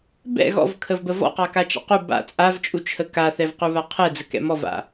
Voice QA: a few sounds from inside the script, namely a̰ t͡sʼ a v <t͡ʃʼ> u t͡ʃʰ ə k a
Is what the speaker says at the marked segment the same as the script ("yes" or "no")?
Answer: yes